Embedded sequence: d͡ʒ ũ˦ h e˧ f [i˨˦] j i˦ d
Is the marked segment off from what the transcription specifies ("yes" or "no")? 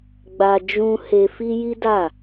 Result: yes